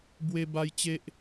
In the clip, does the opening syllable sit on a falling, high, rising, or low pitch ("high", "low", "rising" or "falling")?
high